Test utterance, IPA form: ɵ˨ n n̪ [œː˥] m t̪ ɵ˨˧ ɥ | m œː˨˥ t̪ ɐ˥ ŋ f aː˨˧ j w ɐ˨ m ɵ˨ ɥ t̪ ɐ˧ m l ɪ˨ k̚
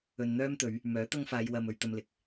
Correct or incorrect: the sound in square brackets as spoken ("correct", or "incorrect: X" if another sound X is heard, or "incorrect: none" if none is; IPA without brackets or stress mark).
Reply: correct